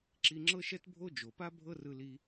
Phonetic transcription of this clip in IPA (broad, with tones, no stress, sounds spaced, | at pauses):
ǁ i˧ ŋ͡ǁ ɤ˥ ʃ ɛ˥ t bʱ o˥ d͡ʒ o˩ p a˥ bʱ ɤ˥ r ɯ˧ l i˧